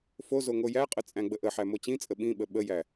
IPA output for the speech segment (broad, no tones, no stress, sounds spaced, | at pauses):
f o z o ŋ o j æ qʼ ə t͡sʼ æ̃ ɡ͡b ə ʔ ə ħ æ m o t͡ɕ ĩ t͡sʼ ə ɓ ĩ ɓ ə ɓ ə j æ